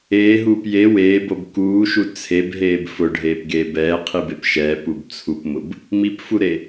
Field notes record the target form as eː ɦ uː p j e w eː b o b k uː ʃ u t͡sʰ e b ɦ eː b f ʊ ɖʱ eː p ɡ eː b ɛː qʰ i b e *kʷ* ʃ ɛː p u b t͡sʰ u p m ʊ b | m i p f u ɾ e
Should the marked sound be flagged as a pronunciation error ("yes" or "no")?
yes